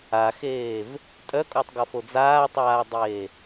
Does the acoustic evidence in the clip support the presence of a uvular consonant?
no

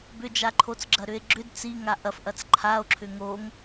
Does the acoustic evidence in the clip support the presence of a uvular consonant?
no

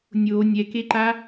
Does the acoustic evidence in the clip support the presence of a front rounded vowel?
no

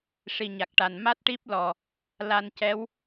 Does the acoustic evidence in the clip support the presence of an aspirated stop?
no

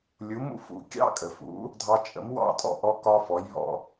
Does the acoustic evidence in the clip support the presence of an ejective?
yes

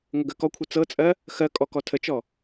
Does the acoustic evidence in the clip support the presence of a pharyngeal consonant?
no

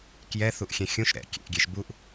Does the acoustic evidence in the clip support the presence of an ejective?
no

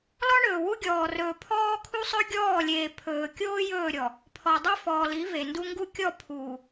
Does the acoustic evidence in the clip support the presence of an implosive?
no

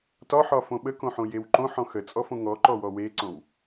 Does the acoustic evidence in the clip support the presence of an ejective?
yes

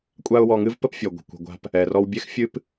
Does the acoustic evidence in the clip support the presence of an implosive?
no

